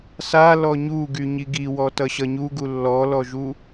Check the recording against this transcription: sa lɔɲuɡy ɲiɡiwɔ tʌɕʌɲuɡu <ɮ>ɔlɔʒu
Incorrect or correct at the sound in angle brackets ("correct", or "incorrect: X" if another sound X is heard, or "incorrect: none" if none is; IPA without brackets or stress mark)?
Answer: incorrect: lː